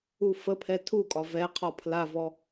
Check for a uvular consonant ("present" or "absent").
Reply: present